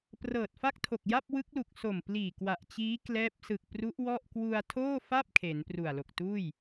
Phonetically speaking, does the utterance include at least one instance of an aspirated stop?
yes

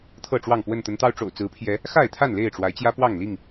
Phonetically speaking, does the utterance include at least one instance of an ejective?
no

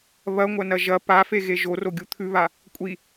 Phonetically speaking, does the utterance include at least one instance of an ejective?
yes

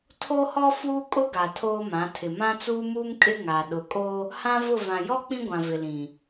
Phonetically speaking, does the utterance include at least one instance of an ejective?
yes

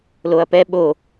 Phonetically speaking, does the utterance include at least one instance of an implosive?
yes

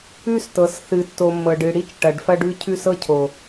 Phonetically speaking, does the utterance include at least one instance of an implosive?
no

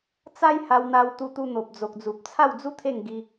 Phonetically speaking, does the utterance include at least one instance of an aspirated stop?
yes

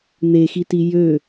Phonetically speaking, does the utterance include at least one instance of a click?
no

